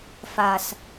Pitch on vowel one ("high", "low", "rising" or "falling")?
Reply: low